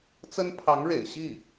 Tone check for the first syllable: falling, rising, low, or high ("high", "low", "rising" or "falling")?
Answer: high